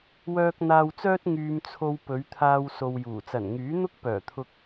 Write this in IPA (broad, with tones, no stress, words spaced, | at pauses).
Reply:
wœː˧k̚ n̪aː˧wt͡sœː˥t̚ ŋyː˧mt͡sʰo˧w pɵ˨˧ɥt̪ʰaː˧w so˧wjuː˨˩ t͡sɐ˨˩nŋyː˨˥n̪ʊ˥k̚ pœː˨˩t̪ʰʊ˧k̚